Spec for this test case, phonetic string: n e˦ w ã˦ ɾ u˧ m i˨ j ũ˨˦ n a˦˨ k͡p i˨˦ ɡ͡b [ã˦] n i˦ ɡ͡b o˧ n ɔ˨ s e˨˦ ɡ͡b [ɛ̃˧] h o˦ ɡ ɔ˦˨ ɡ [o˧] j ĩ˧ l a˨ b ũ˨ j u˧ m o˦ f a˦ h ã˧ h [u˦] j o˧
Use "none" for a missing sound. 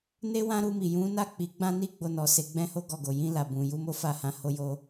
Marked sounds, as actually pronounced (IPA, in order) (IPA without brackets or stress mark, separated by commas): ã˦, ɛ̃˦, o˨, o˦